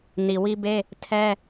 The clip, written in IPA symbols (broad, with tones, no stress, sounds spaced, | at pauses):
n i˨ w i˦ b e˦ | tʰ ɛ˦